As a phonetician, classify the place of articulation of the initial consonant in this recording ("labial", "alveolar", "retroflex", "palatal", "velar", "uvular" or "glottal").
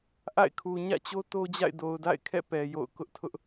glottal